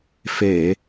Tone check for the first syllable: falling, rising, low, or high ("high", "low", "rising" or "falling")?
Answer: low